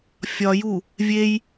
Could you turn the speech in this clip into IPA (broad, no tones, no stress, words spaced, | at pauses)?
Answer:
fʲɒju | vʲej